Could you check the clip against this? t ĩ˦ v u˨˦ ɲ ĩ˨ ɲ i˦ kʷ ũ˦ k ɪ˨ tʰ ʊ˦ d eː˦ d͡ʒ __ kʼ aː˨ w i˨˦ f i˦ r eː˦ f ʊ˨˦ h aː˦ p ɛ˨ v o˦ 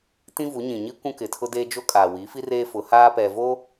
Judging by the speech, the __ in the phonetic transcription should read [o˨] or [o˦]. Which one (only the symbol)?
o˦